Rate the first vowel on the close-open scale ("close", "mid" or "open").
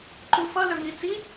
close